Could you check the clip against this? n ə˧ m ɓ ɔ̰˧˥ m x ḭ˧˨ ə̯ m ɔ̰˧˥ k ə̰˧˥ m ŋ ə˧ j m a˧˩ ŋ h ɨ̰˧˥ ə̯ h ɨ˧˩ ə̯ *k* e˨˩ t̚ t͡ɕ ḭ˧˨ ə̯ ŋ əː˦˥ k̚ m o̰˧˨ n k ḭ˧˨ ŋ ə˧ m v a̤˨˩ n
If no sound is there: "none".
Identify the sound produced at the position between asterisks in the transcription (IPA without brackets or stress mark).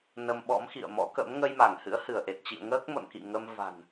ʔ